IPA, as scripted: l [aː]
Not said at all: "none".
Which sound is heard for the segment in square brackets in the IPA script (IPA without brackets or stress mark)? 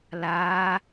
aː